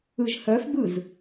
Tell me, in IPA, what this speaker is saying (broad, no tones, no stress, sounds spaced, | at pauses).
ɯ ʒ h œ f b ɯ z